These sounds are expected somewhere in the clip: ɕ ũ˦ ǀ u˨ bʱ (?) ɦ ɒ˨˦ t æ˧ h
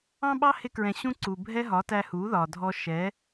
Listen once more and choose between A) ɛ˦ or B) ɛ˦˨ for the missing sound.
A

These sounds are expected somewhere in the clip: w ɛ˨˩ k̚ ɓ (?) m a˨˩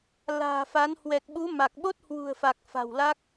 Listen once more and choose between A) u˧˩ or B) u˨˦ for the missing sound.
B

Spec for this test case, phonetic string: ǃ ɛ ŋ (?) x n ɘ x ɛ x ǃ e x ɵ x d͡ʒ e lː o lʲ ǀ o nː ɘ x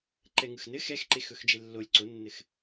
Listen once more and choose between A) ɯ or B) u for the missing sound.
A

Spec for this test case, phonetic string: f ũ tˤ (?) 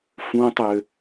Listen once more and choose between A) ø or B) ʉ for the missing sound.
A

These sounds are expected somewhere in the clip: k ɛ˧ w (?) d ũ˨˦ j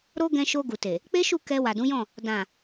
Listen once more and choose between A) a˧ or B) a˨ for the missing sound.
B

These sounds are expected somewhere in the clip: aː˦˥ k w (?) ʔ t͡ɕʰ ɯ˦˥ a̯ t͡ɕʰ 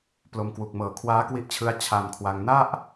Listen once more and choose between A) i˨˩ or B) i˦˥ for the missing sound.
B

